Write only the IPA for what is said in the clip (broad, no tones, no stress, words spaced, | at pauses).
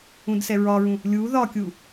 ũdsɛɹɒɹũ | lʲu ðɒkʲu